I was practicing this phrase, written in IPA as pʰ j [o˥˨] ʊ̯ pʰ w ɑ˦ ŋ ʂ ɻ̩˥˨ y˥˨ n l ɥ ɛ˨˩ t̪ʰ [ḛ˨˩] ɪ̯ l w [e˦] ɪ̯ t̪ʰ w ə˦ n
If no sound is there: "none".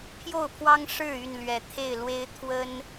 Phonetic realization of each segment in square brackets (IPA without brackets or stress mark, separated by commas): o˥˨, e˥˨, e˦